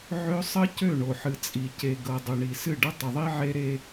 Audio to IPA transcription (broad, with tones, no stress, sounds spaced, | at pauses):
ʕ ø˦ sˤ ə˦ c ø˦˨ ɳ o˨ ħ ɨ˨ t͡sʼ i˨ c e˨ ɡ ɤ˨ dˤ ʏ˨ ɳ i˨ s ɨ˦˨ ɖ ə˦ tˤ ə˨ ðˤ i˦ ʕ e˦ ɾ e˦